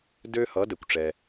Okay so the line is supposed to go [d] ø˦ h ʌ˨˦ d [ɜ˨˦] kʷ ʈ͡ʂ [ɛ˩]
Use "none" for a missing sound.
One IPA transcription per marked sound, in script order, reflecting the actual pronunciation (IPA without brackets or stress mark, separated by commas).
d, ɛ˨˦, ɛ˦